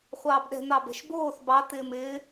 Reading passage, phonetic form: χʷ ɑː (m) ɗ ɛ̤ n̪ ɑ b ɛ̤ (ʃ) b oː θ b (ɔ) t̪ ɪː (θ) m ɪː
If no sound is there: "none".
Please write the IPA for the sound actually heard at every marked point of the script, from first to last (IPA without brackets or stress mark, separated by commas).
b, ʃ, ɑ, none